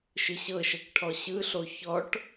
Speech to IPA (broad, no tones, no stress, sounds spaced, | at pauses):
ʃ ɯ ɕ ɤ ʃ ɤ k ʈʰ ɔ ɕ ɯ ɬ o ç ɔ ʈ